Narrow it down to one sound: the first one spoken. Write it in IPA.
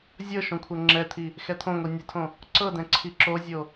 zʲ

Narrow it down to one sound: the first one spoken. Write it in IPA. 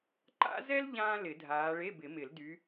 ǃ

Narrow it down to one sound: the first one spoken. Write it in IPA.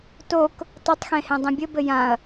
t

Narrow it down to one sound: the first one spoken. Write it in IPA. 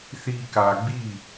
θ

